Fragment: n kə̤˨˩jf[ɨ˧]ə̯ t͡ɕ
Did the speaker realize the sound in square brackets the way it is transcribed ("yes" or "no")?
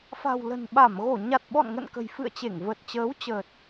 no